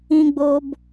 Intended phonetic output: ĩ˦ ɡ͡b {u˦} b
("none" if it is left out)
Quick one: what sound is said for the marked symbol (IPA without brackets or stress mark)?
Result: o˦